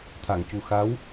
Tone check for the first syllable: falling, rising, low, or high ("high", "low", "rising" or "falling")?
low